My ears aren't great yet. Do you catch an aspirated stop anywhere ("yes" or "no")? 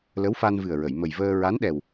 no